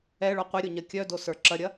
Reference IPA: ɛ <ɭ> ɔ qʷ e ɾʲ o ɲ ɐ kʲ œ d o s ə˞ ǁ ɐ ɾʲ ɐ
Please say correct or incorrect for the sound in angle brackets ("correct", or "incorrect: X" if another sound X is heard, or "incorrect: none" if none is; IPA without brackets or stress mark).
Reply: correct